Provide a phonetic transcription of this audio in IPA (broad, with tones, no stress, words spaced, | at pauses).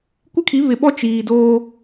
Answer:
kʷɪ˦kʰi˨˦βɪ˨ɓɔ˦ t͡ʃiː˨ doː˦